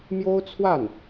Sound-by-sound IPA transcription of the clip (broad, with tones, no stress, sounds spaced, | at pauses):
m j o˥ ʊ̯ t͡sʰ w a˥˩ n